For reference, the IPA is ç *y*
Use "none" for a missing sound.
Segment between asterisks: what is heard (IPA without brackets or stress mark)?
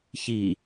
i